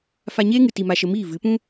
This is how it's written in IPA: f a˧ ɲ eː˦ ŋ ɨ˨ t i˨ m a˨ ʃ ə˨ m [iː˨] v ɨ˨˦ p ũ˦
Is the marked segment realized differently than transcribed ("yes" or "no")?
yes